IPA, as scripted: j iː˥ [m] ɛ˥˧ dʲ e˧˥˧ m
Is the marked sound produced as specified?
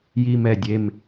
yes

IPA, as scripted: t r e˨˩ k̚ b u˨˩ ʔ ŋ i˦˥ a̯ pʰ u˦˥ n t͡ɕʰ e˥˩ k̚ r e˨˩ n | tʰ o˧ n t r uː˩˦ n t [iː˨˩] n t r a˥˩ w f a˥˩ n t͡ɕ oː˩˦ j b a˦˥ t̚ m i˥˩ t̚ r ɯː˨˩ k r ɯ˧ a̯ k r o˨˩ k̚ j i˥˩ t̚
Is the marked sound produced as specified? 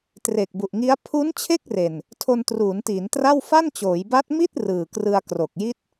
no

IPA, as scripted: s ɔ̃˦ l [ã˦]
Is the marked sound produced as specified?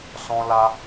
no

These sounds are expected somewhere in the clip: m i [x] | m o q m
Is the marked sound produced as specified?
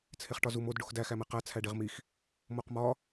yes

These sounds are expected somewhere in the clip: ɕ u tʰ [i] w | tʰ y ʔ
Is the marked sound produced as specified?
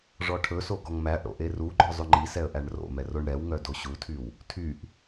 no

